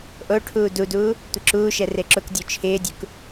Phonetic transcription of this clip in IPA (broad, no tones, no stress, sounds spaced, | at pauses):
ʔ o ʈʰ uː d u d uː | tʷ ɪ ǁ uː ʃ ɛ r e ǁ ʊ k dʲ o t͡ʃʰ ɪː dʲ u k